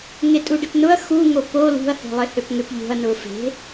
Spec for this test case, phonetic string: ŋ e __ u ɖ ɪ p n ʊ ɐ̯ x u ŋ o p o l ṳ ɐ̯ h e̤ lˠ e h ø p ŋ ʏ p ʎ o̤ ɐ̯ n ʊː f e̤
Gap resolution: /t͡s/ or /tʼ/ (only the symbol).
tʼ